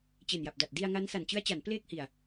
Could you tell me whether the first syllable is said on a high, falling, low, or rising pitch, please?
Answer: low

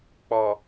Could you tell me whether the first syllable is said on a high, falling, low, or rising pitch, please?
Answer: low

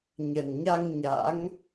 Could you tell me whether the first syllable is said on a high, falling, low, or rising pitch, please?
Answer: low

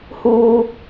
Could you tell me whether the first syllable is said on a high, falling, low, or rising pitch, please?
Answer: high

